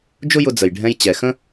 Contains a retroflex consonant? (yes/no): yes